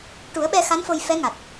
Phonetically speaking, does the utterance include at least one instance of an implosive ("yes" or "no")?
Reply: yes